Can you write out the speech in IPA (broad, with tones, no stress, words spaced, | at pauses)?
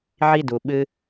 ʕi˥du˩ ɓɨ˦